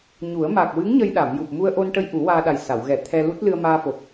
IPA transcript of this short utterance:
ɲ u˨˩˦ ə̯ m a˨˩ k̚ w ɨ˧˥ ŋ ɲ ə˧ j ɗ a˨˩˨ m j u˨˩ p̚ m u˧ ə̯ ʔ o˧ n ʈ ə˧ j ʔ u˨˩˦ w aː˧ ɗ a˨˩ j s a˨˩˨ w ɣ ɛ˨˩˦ t̪ʰ ɛ˧ l u˦˥ t̚ l ɨ˧ ə̯ m aː˧ f o˨˩ p̚

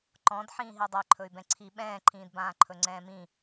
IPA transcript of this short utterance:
ǃ ɔ̃ d ħ ĩː ɦ i dˤ ɛ ǃʰ ɵ y̯ b ɛ̃ ǀʰ i ɓ ɛ̃ː ǃʰ ĩː d b ãː ǃʰ ɵ ŋ͡ǀ ɛ̃ː m ĩ

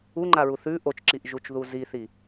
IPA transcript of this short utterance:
u ŋ͡ǃ a ɹ u θ ʉ ʔ o t͡ʃ ǁ i ʔ ʒ u t͡ʃ ð u z i θ i

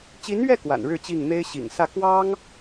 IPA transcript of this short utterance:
t͡ɕ i˧˥ n ɥ ɛ˥˩ k w a̰˨˩ n ɻ ɻ̩˥˧ t͡ɕ i˥˩ ŋ n̪ e˥ ɪ̯ ɕ ḭ˨˩ ŋ s ä˥˩ k w ɑ˥ ŋ

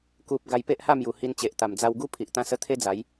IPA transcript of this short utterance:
k u˨ p̚ ɡ a˧ j p e˦ ʔ h a˥˧ m j u˨˩ h i˧ n t͡ɕ e˨ ʔ t̪ a˨˩ m d͡z a˧ w ɡ u˦ pʰ i˨ ʔ t̪ ã˧ s ə˧ t̪ʰ e˦ d͡z a˨˦ j

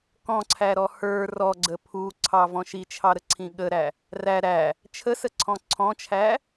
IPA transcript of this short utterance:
k ɔ̃ ǀʰ æ ɾ ɔ h ə˞ r ɔ ɡ͡ǀ ə pʰ u ǀʰ ɑ v ɔ̃ ʃ i t͡ʃʰ ɑ ɾ ə ǀʰ ĩ ɠ ə ɾ æ | r æ ɾ æ | t͡ʃʰ ə s ə ǀʰ ɔ̃ ǀʰ ɔ̃ t͡ʃʰ æ

